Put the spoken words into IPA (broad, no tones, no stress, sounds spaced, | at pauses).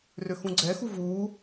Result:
r ø x ũ ɡ͡ǀ ɛ x u v uː